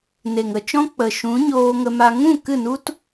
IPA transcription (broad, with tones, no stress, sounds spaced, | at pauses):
n e˨ ŋ ə˧ t͡ʃ ɔ̃˦ k͡p ə˨ ʃ ũ˨˦ ɲ oː˧ ŋ ə˧ m a˧ ŋ ũ˦˨ k ɨ˦˨ n u˦ t